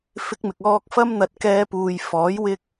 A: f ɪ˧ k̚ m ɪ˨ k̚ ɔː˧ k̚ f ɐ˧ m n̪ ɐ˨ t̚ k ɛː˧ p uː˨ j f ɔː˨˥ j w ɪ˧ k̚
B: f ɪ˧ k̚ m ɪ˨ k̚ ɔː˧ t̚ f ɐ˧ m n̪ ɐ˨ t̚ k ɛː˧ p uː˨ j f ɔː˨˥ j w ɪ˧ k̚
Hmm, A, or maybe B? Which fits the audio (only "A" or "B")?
A